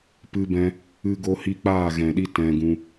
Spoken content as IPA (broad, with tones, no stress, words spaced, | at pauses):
pɨ˧bɛ̃˧ | ɨ˦ɡo˦hi˦ k͡paː˦˨ɣɛ̃˨ɗi˦ tɛ̃˧ɡũ˧